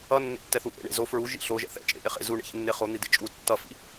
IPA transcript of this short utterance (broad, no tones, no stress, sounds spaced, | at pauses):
ʌ nː ḛ tː ɛ θ u ʔ ḛ ɳ ḛ z o f ɹ u ʒ ḭ ɬ o ʒ ɛ̰ θ ɛ̰ t͡ʃʼ ḛ ʔ e χ ḛ z u ɳ ḛ ç ḛ nː e χ o n̪ i d ḛ t͡ʃʼ u tː ʌ f ḭ